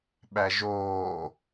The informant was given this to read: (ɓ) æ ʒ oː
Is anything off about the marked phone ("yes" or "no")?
no